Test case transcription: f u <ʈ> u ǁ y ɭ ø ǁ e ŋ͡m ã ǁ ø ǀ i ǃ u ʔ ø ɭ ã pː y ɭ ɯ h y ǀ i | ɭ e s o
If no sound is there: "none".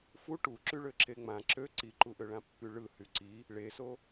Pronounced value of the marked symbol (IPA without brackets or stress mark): ʈ